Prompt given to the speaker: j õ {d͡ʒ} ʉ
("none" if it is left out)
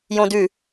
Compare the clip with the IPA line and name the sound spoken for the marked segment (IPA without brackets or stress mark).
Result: d